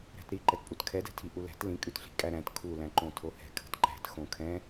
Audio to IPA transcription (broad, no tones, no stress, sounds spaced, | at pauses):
ɾ æ̤ t ɾ i ǃ ɛ t pʼ u t kʰ ɛ d ɛ̤ tʰ i ʔ u l æ̤ t l ĩ kʼ ʉ t ɬ i̤ kʼ æ ɾ æ̃ t kʰ u l æ̃ ǃ õ tʰ o h ɛ̤ kʰ ə̤ t ǃ æ̤ t x õ kʰ ɛ̃